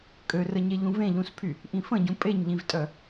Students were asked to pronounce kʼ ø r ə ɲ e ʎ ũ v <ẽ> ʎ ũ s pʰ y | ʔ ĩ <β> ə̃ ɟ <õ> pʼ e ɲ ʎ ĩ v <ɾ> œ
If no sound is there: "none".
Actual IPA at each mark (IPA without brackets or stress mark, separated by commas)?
ẽ, f, ũ, tʼ